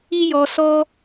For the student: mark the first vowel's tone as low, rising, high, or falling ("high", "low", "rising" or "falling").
high